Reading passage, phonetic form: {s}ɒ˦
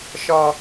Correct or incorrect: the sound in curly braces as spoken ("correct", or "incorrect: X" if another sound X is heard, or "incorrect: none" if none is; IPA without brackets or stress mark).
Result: incorrect: ʃ